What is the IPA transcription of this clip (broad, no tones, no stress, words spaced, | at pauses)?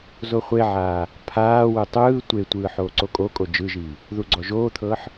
zoχʷeʕaː | pʰaːwɯ tˤɯː tʷetʷɯː ħoːǀokʼokʼo d͡ʒɯʒiː | ðuɡ͡ǀɔʒoːt̪ʰɤːħ